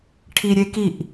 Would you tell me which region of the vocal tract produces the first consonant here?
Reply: retroflex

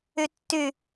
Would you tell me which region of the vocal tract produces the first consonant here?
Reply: tongue tip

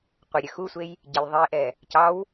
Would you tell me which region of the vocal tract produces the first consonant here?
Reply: uvula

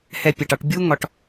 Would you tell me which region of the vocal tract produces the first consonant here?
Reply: throat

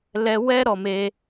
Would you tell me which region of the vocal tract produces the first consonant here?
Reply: tongue tip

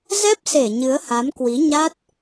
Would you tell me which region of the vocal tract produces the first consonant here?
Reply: tongue tip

